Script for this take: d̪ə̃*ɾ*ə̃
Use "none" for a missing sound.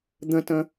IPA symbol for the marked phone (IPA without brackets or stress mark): t